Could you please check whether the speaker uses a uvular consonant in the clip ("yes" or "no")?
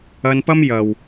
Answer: no